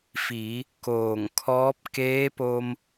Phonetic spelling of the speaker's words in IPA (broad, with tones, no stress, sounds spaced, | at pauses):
f i˩˧ | k oː˧˩ ŋ kʰ ɔː˧˥ p̚ k eː˧˥ p o˧ m